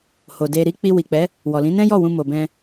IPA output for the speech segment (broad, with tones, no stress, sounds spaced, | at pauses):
h o˨ d e˧ ɾ i˦ k͡p i˧ w i˨ k͡p ɛ˨˦ | w ɔ˨ l ĩ˨˦ n ɛ̃˦ j ɔ˦˨ w ũ˧ m o˨ b ɛ̃˧